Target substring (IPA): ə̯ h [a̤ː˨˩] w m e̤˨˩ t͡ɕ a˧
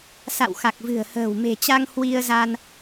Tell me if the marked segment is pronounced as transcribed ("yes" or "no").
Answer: no